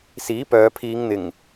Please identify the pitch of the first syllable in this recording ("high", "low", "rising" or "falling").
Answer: rising